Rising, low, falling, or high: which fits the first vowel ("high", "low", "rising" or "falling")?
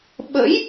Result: rising